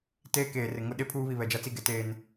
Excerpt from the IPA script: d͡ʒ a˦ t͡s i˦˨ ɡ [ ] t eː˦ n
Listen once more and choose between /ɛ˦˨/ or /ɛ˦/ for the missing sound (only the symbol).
ɛ˦